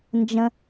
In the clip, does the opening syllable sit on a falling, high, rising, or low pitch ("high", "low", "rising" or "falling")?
high